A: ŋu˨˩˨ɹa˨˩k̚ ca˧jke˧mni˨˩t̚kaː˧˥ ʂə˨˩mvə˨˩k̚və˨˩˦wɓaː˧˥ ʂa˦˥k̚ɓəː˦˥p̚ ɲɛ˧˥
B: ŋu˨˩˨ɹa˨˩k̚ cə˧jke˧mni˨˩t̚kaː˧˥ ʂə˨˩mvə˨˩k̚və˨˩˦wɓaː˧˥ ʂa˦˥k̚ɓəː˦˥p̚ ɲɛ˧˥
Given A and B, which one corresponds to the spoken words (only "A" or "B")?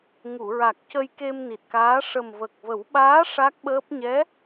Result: B